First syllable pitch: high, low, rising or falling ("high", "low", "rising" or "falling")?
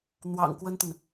low